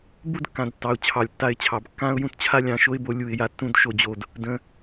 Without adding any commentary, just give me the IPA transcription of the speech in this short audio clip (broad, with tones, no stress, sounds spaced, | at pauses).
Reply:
b u˦ d kː ã˨ d tː ɑ˨ ʊ̯ t͡ɕʰ ɑ˨ lʲ tː a˧ ɪ̯ t͡ɕʰ ɑ˨ b kː ã˦ ʊ̯ j ũ˧ t t͡ɕʰ a˦ lʲ ɑ̃˨˦ ʃ o˦ ɪ̯ b o˦ lʲ u˦˨ ɪ̯ j a˦ tː ũ˦ d ʃ o˧ d͡ʑ o˧ d | d ə̃˧